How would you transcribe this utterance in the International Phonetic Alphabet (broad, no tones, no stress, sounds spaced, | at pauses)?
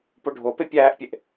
p o ɖʱ o p e pʲ æː ʔ pʲ e ʔ